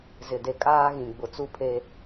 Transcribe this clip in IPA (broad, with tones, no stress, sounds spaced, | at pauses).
z ɪ˨ d e˨ kʼ aː˦ ɣ ĩ˨ ɡ͡b ʊ˨ t͡s u˦ pʰ e˦